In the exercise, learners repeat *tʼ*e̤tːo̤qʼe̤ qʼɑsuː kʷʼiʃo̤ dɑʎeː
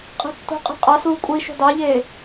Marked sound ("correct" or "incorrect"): incorrect